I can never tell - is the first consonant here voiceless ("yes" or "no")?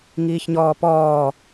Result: no